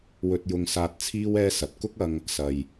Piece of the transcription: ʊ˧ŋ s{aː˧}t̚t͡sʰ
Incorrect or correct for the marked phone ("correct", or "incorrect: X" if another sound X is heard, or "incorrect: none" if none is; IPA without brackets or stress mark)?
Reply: correct